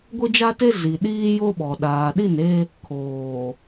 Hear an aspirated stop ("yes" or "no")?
yes